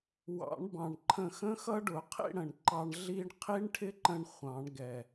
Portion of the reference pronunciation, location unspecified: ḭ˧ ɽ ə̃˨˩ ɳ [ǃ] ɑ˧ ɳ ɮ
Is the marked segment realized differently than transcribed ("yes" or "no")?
no